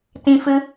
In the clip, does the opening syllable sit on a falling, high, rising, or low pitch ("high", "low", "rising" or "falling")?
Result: high